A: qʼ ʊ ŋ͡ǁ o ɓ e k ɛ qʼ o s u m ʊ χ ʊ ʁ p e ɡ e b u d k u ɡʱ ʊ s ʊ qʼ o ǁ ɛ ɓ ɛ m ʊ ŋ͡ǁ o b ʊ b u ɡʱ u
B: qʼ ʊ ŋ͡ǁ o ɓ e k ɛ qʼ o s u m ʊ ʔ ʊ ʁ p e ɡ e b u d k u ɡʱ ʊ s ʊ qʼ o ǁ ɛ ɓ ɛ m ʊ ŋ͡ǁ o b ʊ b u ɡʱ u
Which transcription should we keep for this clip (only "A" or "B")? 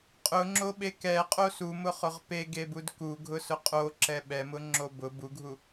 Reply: A